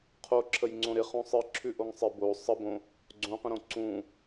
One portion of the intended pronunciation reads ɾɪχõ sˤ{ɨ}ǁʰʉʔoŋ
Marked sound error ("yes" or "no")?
no